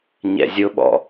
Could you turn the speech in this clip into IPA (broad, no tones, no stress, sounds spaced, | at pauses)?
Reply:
ɲ ɛ̰ zʲ ʊ ɓ ɔ̰